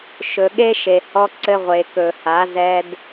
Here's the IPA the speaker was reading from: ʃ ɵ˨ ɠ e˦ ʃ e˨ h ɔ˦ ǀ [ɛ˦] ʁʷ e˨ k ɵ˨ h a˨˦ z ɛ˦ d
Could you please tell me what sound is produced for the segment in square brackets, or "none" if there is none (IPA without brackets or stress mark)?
ɘ˦